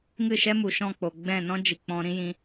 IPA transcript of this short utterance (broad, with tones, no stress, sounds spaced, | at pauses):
ŋ ɨ˦˨ ʃ ɛ˦ m u˨ ʃ ɔ̃˦˨ k͡p o˨ ɡ͡b ɛ̃˦˨ n ɔ̃˦ d͡ʒ i˨ k͡p ɔ̃˧ ɾ ĩ˦ j ĩ˧